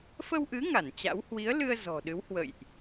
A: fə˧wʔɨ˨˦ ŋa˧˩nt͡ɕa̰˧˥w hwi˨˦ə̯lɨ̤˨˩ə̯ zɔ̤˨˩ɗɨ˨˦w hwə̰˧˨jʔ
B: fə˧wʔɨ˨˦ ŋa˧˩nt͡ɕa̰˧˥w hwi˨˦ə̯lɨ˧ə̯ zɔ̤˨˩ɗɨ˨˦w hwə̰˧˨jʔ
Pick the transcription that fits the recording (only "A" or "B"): B